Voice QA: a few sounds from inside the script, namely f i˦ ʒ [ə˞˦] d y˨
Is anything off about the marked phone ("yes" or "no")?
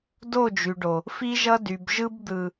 yes